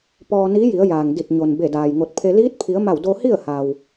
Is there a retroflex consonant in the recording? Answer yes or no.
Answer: no